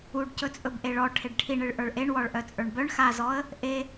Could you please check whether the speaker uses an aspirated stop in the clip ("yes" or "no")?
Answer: yes